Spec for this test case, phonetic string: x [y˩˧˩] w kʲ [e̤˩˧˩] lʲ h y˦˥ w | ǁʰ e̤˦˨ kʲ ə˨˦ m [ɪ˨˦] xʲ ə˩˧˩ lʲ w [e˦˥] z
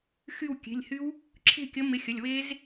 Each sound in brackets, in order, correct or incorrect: incorrect, correct, correct, correct

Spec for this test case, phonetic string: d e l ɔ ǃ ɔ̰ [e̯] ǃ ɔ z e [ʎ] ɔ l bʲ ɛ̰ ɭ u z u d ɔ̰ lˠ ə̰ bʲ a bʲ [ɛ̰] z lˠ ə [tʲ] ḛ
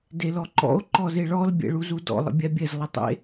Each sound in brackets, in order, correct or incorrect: incorrect, incorrect, incorrect, incorrect

